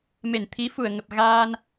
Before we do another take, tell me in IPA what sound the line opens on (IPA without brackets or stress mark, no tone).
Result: m